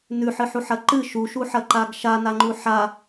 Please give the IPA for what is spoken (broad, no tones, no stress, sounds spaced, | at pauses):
n ʉ ħ ɨ ħ u ħ ɐ ǃ ɨ ʃ u ʃ u ħ ɐ ǃ a ɡ ʃ a n a ŋ͡ǃ u ħ a